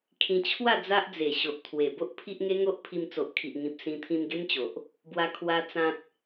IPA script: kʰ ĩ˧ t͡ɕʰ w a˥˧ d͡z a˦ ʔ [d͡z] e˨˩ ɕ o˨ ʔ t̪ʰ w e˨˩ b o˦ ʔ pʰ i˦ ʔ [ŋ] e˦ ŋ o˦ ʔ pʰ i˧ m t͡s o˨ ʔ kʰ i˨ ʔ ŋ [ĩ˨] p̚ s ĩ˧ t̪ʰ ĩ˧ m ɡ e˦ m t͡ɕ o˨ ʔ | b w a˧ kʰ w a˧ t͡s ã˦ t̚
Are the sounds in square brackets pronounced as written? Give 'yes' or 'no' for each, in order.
yes, yes, yes

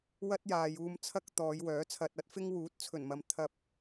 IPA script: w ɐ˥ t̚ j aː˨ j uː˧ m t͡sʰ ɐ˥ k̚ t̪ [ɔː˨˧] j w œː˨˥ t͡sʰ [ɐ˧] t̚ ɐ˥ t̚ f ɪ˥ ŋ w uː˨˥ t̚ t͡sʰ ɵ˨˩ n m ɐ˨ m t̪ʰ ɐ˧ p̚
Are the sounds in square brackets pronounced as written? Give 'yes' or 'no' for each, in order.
yes, yes

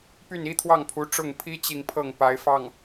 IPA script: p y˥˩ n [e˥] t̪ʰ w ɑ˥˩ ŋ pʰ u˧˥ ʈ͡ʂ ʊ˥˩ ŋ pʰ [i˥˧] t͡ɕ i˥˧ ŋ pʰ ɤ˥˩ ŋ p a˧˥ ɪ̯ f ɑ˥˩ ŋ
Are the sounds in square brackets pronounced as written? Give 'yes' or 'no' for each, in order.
no, no

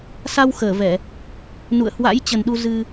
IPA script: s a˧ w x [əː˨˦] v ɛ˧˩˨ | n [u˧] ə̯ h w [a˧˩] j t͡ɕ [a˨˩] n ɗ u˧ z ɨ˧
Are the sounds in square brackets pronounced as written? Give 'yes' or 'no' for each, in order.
no, no, no, no

